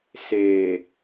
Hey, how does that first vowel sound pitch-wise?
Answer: low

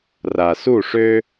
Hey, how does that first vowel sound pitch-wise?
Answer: low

